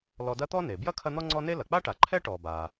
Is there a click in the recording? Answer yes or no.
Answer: yes